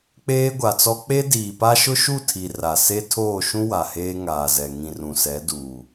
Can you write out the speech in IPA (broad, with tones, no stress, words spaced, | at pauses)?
k͡peː˦ɡʷa˨t͡sɔ˦ k͡pe˦diː˨pa˦ ʃʊ˦ʃu˦˨tʰi˨ ra˨se˦ tʰoː˦˨ʃũ˦ wa˨heː˦ŋaː˨zɛ˨ ŋĩ˨rũ˨sɛ˨˦ duː˨